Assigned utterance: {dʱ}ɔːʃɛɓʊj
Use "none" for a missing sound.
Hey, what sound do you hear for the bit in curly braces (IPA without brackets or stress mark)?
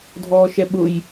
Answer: dʱ